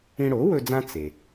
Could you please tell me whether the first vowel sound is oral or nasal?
nasal